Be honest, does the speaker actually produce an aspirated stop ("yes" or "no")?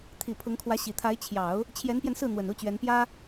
yes